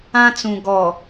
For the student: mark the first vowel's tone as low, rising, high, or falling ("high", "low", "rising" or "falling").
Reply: high